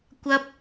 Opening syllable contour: high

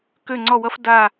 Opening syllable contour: falling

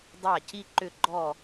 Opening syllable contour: falling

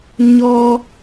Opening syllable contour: high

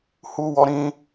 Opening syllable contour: high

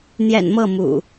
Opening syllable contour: low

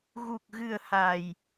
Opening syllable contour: low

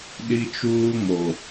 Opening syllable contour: high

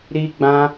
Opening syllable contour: high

